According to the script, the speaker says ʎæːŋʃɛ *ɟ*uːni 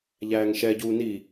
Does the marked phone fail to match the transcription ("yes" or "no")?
no